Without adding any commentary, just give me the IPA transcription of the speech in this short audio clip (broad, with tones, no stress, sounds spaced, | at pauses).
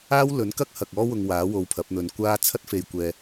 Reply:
aː˥ w l ɵ˨˥ n k ɐ˥ k̚ h ɐ˨ k̚ ɔː˥ w ʊ˧ ŋ w aː˨˥ w o˧ w pʰ ɐ˨˥ p̚ n̪ ɵ˧ n kʷ aː˥ t͡sʰ ɐ˥ t̚ f e˧ j kʷ ɛː˧